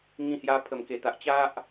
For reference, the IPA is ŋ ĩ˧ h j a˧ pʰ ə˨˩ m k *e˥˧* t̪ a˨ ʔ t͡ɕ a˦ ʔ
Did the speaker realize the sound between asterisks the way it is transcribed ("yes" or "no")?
no